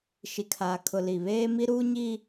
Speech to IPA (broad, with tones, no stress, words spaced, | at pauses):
ʃi˨kʰaː˨kʰʊ˨ li˨βeː˦mi˦ ɾuː˦ɲi˦